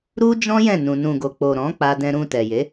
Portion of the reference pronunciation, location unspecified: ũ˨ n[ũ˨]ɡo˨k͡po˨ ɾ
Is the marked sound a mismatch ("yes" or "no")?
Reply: no